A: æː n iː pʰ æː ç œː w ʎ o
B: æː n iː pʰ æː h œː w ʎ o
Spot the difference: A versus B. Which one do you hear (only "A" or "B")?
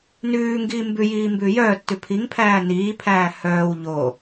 B